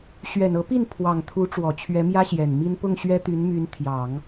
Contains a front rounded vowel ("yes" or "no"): yes